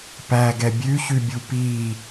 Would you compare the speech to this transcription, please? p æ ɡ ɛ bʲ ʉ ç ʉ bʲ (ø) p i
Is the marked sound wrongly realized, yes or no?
yes